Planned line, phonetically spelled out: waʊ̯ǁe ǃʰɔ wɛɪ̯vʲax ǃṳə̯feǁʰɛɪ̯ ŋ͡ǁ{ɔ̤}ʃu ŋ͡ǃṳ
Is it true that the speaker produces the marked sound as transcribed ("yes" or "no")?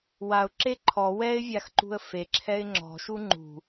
yes